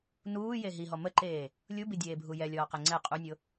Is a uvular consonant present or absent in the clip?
present